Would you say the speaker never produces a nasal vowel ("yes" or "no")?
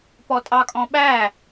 no